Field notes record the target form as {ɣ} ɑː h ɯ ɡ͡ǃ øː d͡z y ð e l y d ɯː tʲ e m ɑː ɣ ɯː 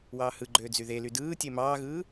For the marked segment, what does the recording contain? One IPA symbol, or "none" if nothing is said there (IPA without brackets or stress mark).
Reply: w